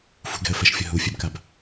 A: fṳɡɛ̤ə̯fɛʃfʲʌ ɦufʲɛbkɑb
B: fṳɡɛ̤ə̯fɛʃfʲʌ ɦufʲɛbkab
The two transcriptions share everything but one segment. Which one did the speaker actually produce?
B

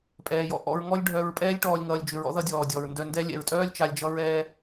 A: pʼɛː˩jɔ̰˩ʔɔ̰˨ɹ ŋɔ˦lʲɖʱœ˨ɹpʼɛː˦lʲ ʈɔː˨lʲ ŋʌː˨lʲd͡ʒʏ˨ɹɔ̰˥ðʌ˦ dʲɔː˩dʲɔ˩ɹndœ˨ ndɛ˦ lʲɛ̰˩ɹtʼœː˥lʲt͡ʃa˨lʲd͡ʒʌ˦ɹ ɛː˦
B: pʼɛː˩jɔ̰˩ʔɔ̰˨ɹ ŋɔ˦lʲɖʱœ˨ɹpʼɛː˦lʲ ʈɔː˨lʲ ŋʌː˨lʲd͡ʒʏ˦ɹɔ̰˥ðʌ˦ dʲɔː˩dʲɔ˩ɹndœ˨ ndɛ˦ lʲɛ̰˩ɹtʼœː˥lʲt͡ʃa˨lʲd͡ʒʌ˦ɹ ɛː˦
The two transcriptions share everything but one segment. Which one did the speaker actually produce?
A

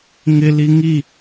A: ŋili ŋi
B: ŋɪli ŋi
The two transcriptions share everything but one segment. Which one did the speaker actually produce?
B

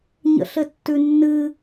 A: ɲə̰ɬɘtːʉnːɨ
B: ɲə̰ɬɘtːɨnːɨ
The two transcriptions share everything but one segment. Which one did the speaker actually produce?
A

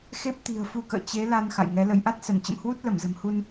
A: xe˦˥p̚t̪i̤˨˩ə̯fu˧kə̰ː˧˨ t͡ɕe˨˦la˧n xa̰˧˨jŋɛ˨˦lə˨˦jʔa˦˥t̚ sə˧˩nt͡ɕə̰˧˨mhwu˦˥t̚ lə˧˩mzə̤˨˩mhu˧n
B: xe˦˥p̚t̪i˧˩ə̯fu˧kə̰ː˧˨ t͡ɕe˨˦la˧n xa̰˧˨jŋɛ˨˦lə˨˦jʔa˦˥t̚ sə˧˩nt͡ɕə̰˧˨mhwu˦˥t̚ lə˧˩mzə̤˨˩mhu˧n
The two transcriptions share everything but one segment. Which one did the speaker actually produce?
A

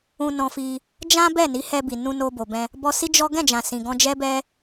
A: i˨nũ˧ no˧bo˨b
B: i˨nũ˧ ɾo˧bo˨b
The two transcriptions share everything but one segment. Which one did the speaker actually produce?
A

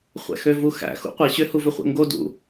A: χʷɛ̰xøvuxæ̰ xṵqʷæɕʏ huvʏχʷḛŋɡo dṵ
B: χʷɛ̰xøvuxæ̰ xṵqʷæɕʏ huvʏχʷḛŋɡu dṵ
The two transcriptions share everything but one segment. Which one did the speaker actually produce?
A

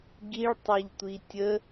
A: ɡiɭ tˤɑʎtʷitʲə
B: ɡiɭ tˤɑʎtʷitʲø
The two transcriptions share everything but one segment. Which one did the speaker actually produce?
A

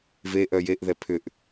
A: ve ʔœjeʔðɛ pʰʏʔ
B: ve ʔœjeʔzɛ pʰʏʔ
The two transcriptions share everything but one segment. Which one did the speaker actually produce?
A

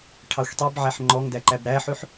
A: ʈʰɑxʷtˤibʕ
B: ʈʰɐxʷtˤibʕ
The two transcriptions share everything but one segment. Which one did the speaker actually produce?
A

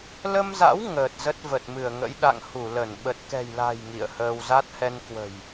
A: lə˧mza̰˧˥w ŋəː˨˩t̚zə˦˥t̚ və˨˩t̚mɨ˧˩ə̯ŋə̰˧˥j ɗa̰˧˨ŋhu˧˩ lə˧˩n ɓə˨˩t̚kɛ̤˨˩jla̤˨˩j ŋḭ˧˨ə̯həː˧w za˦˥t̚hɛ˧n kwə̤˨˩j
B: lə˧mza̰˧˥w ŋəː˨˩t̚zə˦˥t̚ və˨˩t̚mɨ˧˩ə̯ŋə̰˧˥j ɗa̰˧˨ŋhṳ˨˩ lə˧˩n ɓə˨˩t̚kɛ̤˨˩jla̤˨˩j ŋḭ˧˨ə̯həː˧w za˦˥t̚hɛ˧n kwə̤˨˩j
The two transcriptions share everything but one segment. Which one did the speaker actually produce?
A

